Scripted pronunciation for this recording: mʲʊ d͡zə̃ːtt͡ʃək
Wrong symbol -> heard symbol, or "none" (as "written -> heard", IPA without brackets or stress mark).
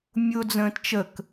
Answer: none